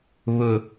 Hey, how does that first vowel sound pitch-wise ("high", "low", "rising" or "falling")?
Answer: low